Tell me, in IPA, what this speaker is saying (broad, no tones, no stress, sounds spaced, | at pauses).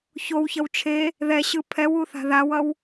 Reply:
ç o w ç ʌ w t͡ʃʰ e | ð ɛ ɕ ɯ pʰ ɛ w u θ a̤ ð a w ʌ w